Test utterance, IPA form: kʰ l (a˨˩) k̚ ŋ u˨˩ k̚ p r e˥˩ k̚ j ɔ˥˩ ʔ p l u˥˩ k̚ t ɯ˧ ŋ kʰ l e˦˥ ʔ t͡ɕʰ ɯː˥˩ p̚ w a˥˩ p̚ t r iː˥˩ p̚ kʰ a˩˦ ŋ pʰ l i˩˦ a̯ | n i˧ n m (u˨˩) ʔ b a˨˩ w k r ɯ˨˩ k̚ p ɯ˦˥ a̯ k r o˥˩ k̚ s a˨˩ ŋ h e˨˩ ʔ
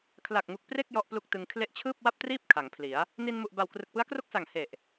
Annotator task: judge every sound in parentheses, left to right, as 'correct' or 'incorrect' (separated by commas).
correct, correct